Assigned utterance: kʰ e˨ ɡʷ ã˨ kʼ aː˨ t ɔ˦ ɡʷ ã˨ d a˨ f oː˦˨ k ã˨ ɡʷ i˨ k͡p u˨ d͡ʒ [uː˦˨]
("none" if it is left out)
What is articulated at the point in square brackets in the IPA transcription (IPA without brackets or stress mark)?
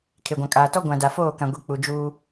uː˦